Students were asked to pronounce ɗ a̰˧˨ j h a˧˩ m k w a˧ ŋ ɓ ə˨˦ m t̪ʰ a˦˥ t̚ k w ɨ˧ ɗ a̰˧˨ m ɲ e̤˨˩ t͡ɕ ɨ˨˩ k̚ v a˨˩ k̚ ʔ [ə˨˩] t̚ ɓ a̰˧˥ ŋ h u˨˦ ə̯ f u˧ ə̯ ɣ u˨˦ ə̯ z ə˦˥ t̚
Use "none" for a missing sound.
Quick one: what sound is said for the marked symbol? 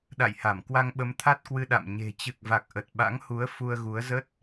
ə˨˩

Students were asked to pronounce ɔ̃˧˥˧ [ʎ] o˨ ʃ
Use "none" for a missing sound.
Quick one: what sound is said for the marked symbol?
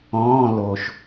l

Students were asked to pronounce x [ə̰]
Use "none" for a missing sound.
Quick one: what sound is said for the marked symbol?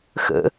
ə̰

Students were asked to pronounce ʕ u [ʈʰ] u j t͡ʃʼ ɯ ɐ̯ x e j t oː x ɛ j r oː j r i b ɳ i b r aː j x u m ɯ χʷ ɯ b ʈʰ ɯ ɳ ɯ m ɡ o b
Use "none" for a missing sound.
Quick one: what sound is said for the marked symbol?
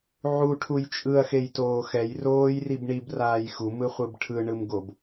ʈʰ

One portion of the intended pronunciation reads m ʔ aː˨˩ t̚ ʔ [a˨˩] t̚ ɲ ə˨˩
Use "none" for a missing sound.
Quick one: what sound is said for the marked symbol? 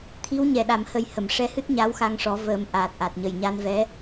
a˨˩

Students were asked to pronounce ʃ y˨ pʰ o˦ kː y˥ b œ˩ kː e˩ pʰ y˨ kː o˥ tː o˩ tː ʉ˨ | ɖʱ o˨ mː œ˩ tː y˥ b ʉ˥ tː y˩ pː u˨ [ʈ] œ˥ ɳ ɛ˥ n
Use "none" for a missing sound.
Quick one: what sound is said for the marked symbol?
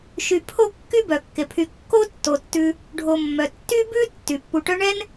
ʈ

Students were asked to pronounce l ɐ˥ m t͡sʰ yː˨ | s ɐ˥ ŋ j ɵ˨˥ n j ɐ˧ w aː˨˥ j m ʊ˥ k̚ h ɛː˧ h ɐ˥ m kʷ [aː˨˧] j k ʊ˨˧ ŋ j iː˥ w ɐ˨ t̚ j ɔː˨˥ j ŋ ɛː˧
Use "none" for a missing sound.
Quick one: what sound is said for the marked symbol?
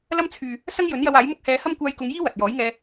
aː˧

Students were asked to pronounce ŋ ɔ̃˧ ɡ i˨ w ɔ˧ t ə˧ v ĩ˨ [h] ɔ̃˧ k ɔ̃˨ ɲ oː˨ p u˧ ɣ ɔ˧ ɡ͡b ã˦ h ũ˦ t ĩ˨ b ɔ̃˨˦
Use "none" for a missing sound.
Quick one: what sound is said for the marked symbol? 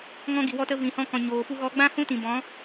h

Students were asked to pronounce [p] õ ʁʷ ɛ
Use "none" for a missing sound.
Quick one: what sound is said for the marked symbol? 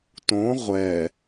t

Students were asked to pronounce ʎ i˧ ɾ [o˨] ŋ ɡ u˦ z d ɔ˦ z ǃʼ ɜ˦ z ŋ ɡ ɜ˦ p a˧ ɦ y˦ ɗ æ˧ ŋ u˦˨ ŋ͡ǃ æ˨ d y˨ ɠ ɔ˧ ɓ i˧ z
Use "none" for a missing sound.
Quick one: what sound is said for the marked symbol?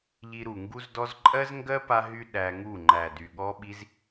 u˨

